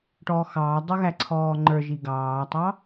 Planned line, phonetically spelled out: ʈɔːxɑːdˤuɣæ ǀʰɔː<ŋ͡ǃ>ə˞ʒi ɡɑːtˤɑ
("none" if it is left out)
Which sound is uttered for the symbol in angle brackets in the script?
ŋ͡ǃ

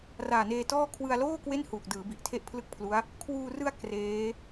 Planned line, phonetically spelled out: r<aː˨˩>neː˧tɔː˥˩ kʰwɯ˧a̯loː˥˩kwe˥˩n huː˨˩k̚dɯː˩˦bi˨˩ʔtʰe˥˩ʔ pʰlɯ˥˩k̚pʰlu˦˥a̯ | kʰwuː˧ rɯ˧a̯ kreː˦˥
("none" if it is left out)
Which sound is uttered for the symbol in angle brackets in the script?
aː˨˩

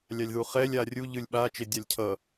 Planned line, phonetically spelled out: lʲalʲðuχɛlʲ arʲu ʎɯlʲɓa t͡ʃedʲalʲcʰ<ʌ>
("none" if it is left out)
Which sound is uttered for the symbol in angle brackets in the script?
ʌ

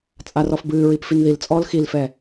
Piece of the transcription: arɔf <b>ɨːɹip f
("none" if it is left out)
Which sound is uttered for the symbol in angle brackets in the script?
b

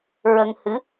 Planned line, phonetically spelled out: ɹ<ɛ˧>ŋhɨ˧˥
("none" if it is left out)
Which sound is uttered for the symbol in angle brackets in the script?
ə˧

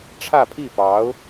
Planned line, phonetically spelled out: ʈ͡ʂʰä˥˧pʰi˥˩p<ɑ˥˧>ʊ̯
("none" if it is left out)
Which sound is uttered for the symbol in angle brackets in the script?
ɑ˧˥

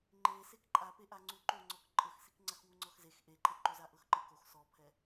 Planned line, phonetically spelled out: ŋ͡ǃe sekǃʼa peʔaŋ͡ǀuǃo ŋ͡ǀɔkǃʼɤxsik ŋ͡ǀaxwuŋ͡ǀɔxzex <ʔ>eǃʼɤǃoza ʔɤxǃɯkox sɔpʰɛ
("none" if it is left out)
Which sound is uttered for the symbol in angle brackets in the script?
ʔ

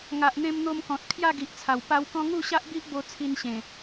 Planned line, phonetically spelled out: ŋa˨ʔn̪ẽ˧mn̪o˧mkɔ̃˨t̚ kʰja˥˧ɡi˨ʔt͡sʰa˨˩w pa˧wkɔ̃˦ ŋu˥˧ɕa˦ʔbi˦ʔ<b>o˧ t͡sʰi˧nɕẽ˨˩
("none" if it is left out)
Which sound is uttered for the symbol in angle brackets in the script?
b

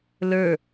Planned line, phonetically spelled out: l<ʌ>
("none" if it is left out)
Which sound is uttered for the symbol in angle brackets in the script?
ə˞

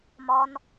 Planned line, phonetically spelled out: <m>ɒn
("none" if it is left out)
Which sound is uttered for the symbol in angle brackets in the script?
m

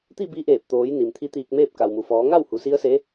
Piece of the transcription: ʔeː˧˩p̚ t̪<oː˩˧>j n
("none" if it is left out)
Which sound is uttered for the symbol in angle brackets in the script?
oː˩˧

